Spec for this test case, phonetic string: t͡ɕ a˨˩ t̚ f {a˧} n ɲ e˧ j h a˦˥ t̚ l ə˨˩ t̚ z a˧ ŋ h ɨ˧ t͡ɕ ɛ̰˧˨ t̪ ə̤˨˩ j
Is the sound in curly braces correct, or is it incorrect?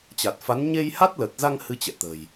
incorrect